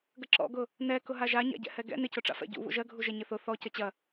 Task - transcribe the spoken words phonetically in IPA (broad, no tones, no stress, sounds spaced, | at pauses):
ɡ ə ǁ ɔ̰ ɡ ʊ | n ɛ k ʊ ɦ a ʒ a ɲ a̰ ɟ ɛ̰ h ɛ ɡ ɛ̰ n ɪ c ʊ ʈ͡ʂ a̰ f ɛ̰ ɟ ṵ β ṵ ʒ ɜ ɡʱ u ʒ ɛ ɲ ɪ θ ʊ θ ɔ c ə t͡ɕ ɐ